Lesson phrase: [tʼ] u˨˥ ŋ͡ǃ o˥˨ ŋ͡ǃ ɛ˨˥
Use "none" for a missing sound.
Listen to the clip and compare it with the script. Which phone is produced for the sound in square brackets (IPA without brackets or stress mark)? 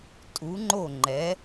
tʼ